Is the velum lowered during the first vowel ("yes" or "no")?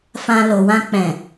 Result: yes